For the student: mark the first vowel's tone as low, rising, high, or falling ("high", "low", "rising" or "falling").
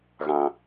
low